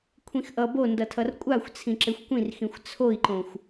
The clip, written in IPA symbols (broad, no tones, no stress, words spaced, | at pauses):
kʷʰĩxʔʌ bondʌtʰʌr kʷʼaxʷ t͡sʰĩǁexʷkʷĩr xĩxʷt͡sʰoi̯ǃõxʷ